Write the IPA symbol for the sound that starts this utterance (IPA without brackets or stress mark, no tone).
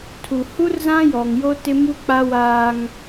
tʰ